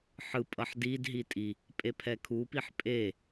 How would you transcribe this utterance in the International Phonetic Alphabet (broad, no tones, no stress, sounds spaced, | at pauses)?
ħ ɯ pʼ ʌ ħ d i d ɦ i tʼ i | pʼ e pʰ ɛ kʰ u p i ħ pʼ e